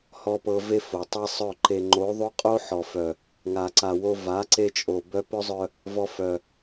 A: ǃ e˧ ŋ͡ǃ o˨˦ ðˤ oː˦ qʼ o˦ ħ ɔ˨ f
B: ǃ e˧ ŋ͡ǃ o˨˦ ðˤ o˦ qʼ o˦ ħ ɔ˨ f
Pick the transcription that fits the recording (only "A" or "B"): B